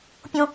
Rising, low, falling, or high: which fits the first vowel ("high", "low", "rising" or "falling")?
high